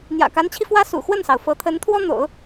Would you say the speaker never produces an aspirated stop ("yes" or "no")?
no